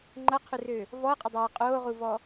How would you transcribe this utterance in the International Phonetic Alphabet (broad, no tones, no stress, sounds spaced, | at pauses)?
ŋ͡ǃ ɐ qʰ ø r ø | v ɔ ə̯ qʼ ɐ dˤ ɐː qʼ oː ʁ u v ɔ